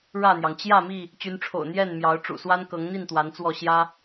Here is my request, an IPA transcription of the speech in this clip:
ɻ ä˥˨ n̪ j ɑ˩ ŋ t͡ɕ j ä˥˨ m i˥˨ | t͡ɕ y˨˦ n ʈ͡ʂʰ o̰˨˩ ʊ̯ n̪ j ɛ˥˨ n m j ɑ˨˦ ʊ̯ ʈ͡ʂ ṵ˨˩ s w a˦ n k ɤ˨˦ ŋ n̪ i˥˨ n t̪ w a˨˦ n t͡s w ɔ˥˨ ɕ j ä˦

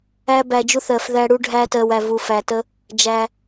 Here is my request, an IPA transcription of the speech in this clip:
æ˦ b æ˧ d͡ʒ u˦ θ ɜ˧ f ð æ˦ ɽ u˦ ɖʱ æ˧ t ɜ˨ w æ˨ v u˨ f æ˨ t ə˧ | d͡ʒ æ˧

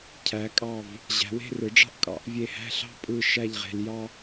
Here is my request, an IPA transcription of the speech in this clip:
cʰ æ˩˧ kʼ ɑ˧˩ v | ʑ æ̤˩˧ w e̤˥˧ r ɯ˩˧ ɖ͡ʐ ɑ̤˥ ʔ kʼ ɑ̰˩˧ ʔ vʲ e˧˩ h æ̤˥˧ ɬ ɑ̤˥ pʼ ɯ˧˩ ʃ æ˥˧ ʎ ʁ e̤˧ l j ɑ˥

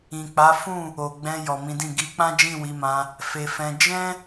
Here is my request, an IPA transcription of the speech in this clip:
ĩ˨ k͡p a˨˦ f ũ˦˨ | o˨ ɡ͡b ɛ̃˧ j ɔ˨ m ĩ˨˦ d ĩ˦˨ ɡ i˨˦ k͡p ã˦ d͡ʒ ĩ˦˨ w i˨˦ m ã˧ | f e˧ f ɛ̃˧ d͡ʒ ɛ̃˦

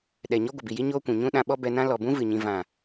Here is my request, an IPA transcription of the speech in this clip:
ɗ ɛ˨ ɲ ɔ˦ ɡʷ ə˨ b i˨ j i˦ ɲ oː˦ kʷ ũ˨ ɲ ũ˦ ɗ ã˧ ɓ ɔ˦ b ɛ˧ n ã˦ l ɔ˨ b ũ˦ v ɨ˨ ɲ ĩ˧ v ã˨

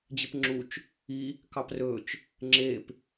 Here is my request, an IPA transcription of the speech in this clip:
d͡ʑ e p ŋ͡ǁ u t͡ʃ | i | k ɑ p r ɵ t͡ʃ | ŋ͡ǁ e p

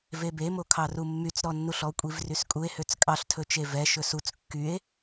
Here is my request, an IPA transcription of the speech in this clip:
v e b e m o kʰ ɑ r u mː y t͡s ɾ ɔ nː u ɬ ɔ kʷʼ i v r y s kʼ u e̯ h ø t͡s kʼ ɑ ɬ tʰ ɵ t͡ʃ e v ɛ ʃ ɵ s u t͡s kː y e̯

